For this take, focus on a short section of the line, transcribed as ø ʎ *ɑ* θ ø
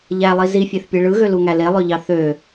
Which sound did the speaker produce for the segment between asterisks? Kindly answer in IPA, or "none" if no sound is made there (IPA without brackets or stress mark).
ɑ